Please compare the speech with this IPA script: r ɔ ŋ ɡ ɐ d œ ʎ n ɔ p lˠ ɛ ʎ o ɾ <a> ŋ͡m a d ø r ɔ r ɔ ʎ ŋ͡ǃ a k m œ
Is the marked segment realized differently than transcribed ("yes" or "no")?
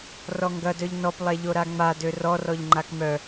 no